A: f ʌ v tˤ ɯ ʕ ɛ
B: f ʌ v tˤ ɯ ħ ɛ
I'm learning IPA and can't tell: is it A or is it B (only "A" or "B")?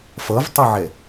A